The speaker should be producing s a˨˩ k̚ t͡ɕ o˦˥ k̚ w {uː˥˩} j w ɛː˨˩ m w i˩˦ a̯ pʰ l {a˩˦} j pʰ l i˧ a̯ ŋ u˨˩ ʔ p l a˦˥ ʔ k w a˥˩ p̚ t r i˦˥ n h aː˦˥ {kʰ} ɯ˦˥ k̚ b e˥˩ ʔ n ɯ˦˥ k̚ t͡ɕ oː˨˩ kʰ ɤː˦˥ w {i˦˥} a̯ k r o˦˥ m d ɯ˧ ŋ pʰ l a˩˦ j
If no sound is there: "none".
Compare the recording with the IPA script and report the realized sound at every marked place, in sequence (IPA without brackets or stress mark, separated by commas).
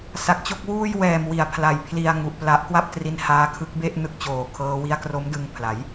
uː˥˩, a˩˦, kʰ, i˦˥